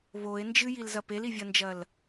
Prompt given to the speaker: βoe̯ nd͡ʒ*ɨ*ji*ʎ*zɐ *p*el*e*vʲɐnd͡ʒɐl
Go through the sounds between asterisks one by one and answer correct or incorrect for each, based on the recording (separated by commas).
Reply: correct, incorrect, correct, incorrect